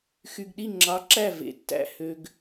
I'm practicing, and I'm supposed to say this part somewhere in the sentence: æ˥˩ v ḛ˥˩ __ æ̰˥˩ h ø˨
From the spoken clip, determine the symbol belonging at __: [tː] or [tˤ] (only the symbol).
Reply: tː